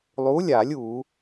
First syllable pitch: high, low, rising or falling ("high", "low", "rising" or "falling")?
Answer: rising